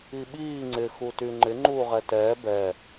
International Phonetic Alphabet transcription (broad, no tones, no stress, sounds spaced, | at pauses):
i ɓ iː ŋ͡ǀ ɪ x u t y ŋ͡ǃ ɪ ŋ͡ǃ uː ʁ ɛ t ɛː b ɛ